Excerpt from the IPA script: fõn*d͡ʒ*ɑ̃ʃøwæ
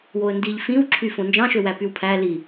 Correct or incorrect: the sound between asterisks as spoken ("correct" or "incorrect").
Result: correct